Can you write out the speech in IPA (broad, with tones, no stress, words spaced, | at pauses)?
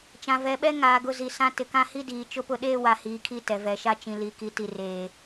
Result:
t͡ʃã˨vɛ˨ɓɛ˦ ŋaː˨ ɡʊ˦zi˨ sã˦ tɪ˨kã˦hi˦diː˨ t͡ʃʊ˦pʊ˦ɗeː˦ wa˨hiː˨kʰi˦˨ tɛ˨vɛ˨ʃa˦ t͡ʃĩ˨li˨ki˨ ti˨reː˨